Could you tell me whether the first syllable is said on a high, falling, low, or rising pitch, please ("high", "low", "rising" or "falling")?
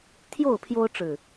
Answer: falling